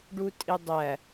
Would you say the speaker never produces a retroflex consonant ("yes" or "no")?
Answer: no